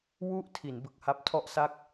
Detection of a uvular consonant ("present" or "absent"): absent